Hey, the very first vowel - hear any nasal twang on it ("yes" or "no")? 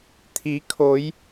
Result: no